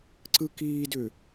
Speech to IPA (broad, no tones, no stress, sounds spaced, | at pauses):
ǀ ɯ k iː d ʏ